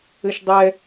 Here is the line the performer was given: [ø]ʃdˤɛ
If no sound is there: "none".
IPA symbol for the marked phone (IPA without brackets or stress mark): ɘ